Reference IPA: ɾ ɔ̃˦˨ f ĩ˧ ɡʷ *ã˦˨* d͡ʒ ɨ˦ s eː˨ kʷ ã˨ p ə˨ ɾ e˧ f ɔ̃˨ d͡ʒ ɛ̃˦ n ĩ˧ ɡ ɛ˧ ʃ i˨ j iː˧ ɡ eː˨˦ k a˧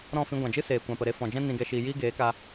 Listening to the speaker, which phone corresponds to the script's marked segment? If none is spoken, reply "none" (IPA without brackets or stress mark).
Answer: ã˨